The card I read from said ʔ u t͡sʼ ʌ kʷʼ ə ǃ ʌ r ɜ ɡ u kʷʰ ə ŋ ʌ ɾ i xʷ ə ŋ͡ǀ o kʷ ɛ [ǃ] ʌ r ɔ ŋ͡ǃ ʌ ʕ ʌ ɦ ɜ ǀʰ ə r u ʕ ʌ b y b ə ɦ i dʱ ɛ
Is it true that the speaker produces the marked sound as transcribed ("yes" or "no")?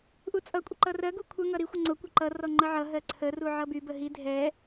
yes